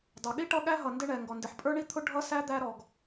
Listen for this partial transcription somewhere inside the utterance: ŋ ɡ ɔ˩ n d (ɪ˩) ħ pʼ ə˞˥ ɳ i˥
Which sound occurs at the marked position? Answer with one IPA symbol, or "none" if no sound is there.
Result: ɪ˩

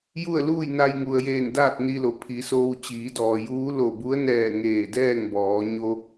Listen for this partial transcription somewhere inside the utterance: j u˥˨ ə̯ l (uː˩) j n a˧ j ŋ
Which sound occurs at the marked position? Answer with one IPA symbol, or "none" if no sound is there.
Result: uː˥˨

